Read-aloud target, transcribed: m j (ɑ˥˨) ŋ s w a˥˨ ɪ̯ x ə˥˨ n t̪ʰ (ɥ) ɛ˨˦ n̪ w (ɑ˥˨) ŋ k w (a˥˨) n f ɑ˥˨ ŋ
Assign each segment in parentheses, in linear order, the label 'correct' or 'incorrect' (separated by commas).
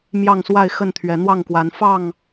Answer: correct, correct, correct, incorrect